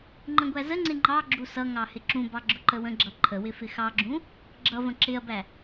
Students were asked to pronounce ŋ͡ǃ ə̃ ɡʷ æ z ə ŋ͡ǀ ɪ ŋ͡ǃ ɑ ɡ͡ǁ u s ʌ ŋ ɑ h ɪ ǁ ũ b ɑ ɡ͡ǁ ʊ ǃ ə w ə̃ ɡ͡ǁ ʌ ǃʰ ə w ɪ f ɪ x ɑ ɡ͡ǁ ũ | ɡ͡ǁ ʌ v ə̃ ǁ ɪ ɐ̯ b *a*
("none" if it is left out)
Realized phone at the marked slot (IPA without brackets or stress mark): æ